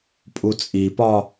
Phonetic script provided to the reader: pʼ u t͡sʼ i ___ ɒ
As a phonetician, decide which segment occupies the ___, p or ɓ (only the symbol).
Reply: p